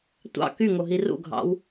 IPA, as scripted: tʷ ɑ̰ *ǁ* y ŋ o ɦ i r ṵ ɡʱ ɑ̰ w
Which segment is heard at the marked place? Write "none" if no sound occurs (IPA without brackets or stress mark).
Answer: k